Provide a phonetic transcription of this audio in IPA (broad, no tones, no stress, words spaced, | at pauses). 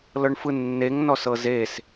lɤɳfɯnːeŋ nɔsɤzes